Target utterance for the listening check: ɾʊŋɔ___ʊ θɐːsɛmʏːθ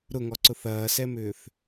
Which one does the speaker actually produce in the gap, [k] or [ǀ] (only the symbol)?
ǀ